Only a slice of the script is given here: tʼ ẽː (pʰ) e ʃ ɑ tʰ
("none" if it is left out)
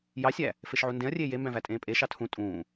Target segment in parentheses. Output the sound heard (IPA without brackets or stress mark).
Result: pʼ